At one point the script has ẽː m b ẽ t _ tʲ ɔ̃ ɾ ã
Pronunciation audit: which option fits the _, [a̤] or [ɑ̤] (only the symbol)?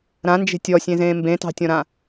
ɑ̤